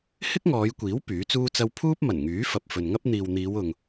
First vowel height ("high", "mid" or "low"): high